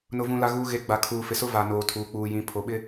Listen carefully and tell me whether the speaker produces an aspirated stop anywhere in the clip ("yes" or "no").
yes